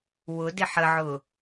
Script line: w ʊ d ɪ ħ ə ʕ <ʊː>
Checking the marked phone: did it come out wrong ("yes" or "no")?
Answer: no